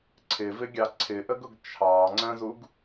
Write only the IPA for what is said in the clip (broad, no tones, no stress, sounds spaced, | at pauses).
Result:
ǀʰ ɪ v ɪ ɡʲ ɑ ǀʰ ɪ ʔ ə ɡ ʊ ɡ t͡ʃʰ ɑ ŋ͡ǀ ə̃ z u ɡ